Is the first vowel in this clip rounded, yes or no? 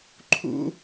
yes